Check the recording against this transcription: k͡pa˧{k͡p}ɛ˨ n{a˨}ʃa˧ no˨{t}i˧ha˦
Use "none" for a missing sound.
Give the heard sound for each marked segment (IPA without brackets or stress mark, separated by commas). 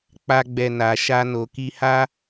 ɡ͡b, a˨, k